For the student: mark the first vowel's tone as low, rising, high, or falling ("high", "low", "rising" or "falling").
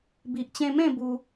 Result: low